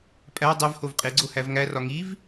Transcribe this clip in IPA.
pʼæ dˤev hovqʼeɡ͡ǀo hævŋærɒ ŋiv

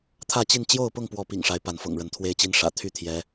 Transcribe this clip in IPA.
t̪ʰä˥˨t͡ɕi˥˨n t͡ɕjo˥˨ʊ̯pʊ˥˨ŋpwɔ˨˦ pḭ˨˩ŋʂa˨˦ɪ̯ pa˨˦nfɤ̰˨˩ŋɻə˨˦n t̪ʰwe˨˦ɪ̯t͡ɕi˨˦n ʂä̰˨˩ t̪ʰy˥˨t̪ʰjɛ˨˦

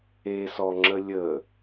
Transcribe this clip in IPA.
esɔŋ͡ǁə lʲə

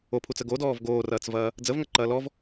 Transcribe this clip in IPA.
opʰut͡sə ɡodɔːv ɡoːrɐːt͡svɐː | d͡zəvŋɐǃɐː lɔv

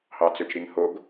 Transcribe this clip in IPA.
hɑt͡søt͡ʃɾiŋhoɡ

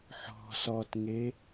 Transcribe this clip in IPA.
ħɔ̤ sɔtŋe

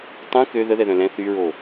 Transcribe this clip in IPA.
tˤũ kø ðəðɛðœ̃ lɛ̃ θyɹo

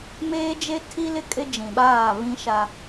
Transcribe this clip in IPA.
meː˦d͡ʒe˦ tʰi˦lɪ˦ kʼɪ˦d͡ʒĩ˨ɓaː˦˨ βĩ˦ʃa˦

